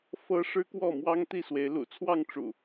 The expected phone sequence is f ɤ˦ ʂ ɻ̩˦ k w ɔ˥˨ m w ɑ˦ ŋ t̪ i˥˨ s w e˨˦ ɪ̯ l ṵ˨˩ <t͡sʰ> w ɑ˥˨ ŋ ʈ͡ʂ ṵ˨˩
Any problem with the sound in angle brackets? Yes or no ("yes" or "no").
no